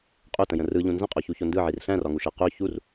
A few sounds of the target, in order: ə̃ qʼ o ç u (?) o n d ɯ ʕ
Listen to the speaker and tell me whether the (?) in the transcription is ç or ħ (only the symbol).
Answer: ç